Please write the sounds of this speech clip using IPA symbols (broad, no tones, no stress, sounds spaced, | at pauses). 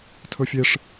tʰ ɵ fʲ e ʂ